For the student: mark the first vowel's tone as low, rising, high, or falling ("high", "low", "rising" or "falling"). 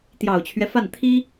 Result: low